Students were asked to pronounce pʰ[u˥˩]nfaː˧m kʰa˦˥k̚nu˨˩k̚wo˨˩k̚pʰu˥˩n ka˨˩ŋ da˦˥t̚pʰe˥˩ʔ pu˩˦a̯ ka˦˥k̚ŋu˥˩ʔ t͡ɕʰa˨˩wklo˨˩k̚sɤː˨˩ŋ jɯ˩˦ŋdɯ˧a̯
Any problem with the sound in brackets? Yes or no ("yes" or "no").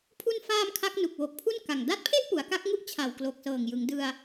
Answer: yes